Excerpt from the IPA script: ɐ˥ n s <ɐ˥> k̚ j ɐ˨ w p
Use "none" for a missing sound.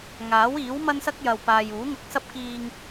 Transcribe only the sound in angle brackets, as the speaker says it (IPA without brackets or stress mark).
ɐ˥